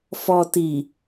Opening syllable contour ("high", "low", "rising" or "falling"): low